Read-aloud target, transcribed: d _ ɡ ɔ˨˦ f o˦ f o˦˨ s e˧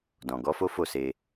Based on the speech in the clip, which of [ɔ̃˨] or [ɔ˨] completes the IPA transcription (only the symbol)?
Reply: ɔ̃˨